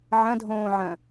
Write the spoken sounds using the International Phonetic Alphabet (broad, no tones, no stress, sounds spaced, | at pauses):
ʕ ɐ̃ dʱ õː ʕ ɐ̃